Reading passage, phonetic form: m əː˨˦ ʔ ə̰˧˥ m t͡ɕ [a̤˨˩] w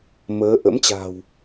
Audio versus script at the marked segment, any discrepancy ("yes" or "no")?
no